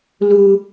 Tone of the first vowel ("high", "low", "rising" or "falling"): high